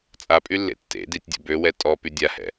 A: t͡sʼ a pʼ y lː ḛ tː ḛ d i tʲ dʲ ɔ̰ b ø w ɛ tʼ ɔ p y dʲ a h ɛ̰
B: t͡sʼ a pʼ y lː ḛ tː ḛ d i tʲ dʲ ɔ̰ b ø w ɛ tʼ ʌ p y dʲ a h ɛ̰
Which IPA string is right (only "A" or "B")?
A